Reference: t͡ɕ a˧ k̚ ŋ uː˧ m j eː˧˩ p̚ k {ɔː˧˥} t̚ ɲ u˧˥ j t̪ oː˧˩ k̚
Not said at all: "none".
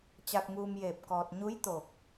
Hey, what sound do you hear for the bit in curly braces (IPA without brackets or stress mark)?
ɔː˧